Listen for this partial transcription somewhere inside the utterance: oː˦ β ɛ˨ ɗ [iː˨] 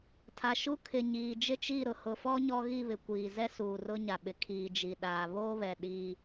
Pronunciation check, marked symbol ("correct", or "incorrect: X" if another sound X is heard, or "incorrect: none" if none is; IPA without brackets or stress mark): incorrect: iː˦